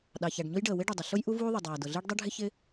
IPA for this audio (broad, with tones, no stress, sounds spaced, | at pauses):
ɗ ɑ˩ ç æ˩ ɖ ɲ ʊ˥ j ɖ əː˩ w ɪ˥ ɖ ʊ˩ dˤ ə˩ ɬ ʊ˥ j ʔ u˥ v uː˥ ðˤ ʌ˩ dˤ æː˩ d ʊ˩ ɮ ɪː˥ ɖ dˤ ʌ˥ ɖʱ ɪ˥ ç ɪ˥